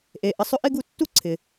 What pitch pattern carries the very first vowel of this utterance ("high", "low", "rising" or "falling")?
low